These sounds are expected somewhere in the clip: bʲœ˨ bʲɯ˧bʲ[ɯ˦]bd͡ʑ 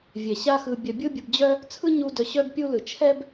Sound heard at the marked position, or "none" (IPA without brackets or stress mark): ɯ˨